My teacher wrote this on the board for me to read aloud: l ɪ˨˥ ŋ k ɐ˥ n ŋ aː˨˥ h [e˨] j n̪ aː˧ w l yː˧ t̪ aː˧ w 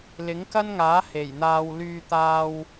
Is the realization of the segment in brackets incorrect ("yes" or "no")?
yes